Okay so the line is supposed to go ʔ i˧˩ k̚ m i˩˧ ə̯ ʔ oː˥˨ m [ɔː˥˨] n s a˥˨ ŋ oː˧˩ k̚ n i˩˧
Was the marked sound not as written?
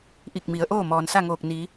yes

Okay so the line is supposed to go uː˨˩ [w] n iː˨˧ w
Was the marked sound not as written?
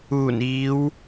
yes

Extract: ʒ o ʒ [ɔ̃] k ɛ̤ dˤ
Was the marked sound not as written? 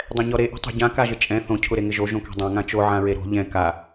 yes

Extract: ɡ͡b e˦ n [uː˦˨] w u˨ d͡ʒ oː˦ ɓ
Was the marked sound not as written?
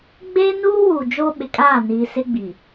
yes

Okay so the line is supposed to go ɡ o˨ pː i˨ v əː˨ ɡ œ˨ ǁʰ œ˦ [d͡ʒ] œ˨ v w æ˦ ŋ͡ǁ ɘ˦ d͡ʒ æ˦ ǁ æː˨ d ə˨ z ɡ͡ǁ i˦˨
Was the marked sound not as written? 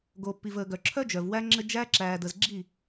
no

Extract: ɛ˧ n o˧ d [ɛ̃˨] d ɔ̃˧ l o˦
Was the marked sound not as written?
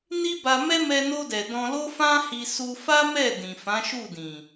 yes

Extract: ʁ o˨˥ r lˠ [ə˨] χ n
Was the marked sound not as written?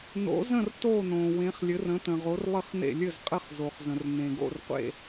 yes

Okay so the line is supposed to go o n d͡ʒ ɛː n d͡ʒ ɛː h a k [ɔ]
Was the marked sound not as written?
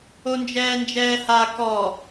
no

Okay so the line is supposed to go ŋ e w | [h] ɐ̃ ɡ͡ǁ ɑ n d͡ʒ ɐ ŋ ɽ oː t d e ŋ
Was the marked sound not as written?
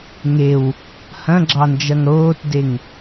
no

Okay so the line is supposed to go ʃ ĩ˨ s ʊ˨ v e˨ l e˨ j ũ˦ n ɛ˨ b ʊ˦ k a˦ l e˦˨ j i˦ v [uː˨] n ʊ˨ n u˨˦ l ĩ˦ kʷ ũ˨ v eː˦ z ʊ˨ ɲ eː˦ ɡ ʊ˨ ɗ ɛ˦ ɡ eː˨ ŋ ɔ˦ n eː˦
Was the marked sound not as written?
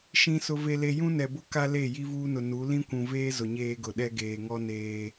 yes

